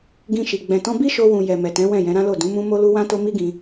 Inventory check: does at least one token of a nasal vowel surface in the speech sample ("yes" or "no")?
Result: yes